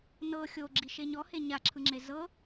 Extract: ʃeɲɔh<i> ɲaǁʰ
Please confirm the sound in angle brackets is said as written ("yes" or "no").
no